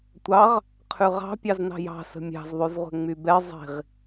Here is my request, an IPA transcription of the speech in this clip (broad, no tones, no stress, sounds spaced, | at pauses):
tʷ ɑ ʁ | qʰ ʉ ʁ ɑ̤ pʲ ɑ z n ɑ̤ j ɑ̤ s ə̤ mʲ ɑ̤ z ðˤ y z ʁʷ ɛ̤ ŋ͡m y b ɛ zˤ i̤ ʁ